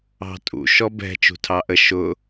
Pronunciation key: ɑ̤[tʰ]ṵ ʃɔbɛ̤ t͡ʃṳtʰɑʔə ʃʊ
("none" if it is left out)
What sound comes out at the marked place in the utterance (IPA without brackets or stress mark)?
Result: tʼ